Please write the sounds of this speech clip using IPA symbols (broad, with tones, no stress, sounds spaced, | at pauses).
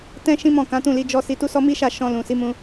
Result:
t ɛ̃˦ ʃ ĩ˦ m ɔ̃˦˨ k ã˨˦ t ũ˦˨ l i˧ d͡ʒ ɔ˦ s i˧ t u˦ s ɔ˦ m i˦ ʃ a˦˨ ʃ ɔ̃˧ l ũ˨ s i˨˦ m ũ˧